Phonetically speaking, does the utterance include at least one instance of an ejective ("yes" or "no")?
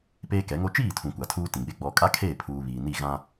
yes